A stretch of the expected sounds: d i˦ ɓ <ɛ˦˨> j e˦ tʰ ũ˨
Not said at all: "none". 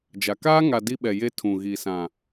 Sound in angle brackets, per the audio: ɛ˨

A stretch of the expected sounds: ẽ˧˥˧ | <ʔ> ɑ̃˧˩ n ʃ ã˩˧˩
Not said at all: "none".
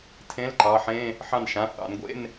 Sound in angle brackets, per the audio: ħ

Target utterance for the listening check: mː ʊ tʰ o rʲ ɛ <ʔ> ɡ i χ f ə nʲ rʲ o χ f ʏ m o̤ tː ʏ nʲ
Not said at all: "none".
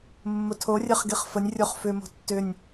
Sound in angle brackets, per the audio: χ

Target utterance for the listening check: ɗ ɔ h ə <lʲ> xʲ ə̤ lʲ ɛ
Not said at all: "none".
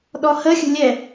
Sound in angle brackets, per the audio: none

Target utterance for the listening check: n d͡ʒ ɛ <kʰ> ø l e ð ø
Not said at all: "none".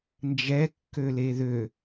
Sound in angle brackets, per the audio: kː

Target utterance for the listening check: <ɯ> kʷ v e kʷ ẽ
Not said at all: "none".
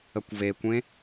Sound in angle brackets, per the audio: ə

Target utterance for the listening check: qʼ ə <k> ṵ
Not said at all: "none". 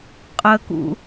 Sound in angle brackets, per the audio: k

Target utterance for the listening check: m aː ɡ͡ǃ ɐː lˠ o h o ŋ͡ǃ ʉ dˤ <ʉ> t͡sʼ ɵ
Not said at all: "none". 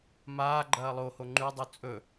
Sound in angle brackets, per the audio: u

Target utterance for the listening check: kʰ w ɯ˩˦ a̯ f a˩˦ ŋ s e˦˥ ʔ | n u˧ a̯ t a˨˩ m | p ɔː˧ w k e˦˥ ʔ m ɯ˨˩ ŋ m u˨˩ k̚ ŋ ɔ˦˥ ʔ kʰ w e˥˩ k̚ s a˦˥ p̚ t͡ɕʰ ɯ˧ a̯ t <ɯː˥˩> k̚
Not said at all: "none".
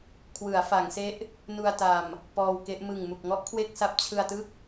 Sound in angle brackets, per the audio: ɯ˥˩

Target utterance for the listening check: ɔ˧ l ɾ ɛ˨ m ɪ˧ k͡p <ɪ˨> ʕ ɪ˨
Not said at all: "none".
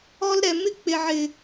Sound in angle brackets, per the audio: ɪ˨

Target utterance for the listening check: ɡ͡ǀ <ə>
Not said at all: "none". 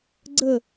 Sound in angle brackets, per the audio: ə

